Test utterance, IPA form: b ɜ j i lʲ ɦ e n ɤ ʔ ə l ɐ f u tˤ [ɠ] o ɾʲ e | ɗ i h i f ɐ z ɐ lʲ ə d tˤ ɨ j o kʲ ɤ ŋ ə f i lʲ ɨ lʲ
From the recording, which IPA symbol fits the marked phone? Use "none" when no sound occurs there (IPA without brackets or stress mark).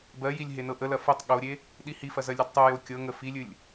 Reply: ɠ